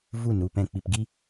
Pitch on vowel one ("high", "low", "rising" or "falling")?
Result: falling